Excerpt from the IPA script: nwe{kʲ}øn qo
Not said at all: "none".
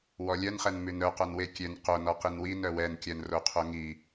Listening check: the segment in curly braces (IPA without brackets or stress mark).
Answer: kʲ